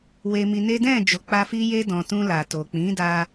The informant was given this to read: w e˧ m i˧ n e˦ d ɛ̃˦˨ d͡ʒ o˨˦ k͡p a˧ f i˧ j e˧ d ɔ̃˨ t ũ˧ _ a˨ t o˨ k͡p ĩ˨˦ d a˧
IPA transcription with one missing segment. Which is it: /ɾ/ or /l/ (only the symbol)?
l